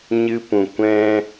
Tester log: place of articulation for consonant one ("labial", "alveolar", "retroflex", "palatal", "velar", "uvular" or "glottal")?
palatal